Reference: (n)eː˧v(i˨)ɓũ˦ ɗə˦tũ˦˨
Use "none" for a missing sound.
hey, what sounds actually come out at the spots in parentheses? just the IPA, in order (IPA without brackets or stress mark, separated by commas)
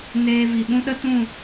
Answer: n, i˨